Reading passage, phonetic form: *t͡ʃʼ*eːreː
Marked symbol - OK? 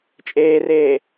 yes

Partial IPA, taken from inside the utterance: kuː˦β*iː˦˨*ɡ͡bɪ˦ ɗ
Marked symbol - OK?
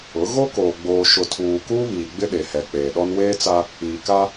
no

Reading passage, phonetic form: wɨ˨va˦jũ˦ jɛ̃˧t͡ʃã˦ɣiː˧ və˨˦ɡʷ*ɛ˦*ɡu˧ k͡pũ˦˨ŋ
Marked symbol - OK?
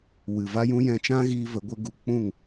no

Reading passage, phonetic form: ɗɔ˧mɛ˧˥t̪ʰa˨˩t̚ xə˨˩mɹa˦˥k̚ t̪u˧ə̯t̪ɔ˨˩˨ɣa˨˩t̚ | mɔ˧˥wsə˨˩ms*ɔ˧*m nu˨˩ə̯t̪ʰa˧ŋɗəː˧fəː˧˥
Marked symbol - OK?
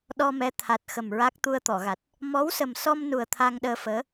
yes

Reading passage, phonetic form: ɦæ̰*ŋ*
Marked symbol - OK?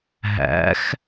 no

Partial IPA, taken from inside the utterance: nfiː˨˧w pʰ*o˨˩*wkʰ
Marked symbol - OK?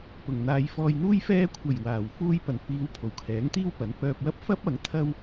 yes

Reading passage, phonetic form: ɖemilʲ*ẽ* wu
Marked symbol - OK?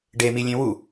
yes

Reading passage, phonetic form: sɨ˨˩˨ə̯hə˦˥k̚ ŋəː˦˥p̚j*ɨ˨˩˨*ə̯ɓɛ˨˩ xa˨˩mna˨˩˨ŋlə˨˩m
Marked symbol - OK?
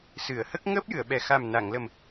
yes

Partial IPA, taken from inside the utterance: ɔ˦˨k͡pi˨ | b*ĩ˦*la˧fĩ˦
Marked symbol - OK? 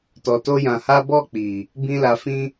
yes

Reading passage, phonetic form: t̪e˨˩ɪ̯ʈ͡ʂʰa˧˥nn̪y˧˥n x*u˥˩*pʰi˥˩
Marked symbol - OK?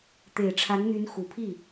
no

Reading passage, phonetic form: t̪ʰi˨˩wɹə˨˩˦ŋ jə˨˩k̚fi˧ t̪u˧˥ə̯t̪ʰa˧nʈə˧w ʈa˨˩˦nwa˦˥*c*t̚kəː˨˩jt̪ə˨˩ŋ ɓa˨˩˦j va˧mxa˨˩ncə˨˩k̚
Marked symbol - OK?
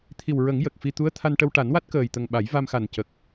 no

